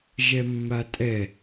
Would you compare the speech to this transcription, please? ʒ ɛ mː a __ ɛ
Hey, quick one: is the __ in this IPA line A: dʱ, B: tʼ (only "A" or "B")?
B